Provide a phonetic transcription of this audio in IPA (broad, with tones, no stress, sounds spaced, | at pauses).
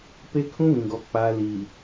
p e˦ kʰ ũ˦ β ĩ˨ ɡ ɔ˨ k͡p a˨ l i˨